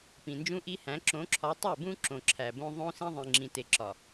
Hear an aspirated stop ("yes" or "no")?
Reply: yes